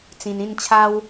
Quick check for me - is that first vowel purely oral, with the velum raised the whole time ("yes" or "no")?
no